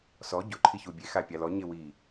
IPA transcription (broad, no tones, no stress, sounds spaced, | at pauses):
s ɔ ɟ ʊ ǃʰ i ç u bʲ e x a pʲ a l ɔ ɲ ɪ w i